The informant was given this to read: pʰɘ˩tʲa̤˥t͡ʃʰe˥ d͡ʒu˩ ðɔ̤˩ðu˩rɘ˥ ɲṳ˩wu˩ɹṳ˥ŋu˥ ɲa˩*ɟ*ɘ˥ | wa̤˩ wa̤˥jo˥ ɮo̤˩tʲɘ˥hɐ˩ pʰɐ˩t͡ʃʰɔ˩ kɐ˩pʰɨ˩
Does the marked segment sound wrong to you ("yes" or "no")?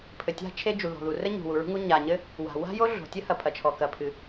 yes